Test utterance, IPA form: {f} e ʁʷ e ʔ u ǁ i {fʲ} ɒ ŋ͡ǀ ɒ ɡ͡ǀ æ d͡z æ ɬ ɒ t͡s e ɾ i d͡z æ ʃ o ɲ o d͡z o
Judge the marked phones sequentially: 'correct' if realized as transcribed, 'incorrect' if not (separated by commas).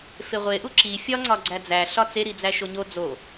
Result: correct, correct